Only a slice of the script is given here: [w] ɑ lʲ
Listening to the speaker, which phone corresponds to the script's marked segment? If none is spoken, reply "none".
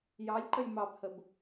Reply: j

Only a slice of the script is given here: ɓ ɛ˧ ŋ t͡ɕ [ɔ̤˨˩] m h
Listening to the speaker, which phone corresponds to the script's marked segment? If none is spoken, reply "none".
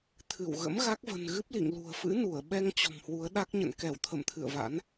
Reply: ɔ̤˨˩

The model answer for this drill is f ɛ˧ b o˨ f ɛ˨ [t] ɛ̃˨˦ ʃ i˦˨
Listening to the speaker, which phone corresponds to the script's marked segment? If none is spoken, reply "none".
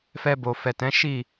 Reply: t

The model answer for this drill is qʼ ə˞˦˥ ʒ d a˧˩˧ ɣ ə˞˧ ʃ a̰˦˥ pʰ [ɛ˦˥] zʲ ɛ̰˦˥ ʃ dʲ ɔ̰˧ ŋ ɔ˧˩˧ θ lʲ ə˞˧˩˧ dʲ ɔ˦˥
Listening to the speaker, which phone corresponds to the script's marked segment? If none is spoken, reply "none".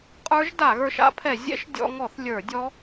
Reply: ɛ˧˩˧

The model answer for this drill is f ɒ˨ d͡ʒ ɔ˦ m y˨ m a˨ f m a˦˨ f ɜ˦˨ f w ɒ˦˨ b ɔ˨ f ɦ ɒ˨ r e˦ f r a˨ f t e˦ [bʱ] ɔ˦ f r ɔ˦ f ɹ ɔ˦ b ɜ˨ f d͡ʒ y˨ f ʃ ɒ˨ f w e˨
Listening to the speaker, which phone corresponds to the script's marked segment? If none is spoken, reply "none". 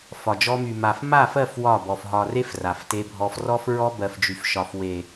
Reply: bʱ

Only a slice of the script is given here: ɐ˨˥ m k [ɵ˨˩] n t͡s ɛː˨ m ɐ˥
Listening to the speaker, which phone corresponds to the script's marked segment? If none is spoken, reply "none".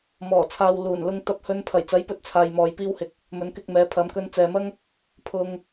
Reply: ɵ˧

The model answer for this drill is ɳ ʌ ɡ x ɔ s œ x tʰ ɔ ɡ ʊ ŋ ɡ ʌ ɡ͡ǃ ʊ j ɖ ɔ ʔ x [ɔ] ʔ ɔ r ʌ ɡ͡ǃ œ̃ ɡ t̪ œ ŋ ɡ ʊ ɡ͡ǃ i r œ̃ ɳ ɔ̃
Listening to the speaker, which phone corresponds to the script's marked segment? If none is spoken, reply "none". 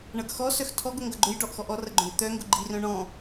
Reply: ɔ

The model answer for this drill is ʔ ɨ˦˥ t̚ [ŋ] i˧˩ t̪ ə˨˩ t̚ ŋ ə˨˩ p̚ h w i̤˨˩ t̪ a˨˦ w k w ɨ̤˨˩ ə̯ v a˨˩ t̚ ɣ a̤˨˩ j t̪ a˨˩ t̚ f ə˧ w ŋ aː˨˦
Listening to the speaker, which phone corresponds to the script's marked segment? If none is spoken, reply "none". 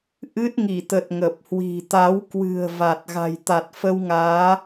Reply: ŋ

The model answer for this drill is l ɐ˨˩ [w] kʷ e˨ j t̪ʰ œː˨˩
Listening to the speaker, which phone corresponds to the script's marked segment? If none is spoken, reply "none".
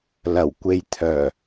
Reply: w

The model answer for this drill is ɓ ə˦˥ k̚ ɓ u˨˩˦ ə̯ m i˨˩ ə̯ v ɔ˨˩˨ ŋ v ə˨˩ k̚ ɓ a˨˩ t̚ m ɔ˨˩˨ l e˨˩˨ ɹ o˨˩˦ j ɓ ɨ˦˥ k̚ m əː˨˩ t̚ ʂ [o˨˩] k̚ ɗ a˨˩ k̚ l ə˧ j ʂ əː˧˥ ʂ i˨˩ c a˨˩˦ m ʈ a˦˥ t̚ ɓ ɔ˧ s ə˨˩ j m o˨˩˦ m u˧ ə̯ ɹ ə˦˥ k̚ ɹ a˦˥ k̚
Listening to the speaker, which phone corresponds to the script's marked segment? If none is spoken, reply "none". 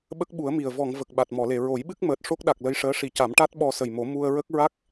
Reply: o˦˥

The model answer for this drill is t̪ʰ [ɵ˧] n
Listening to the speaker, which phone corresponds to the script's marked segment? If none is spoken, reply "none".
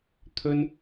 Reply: ɵ˧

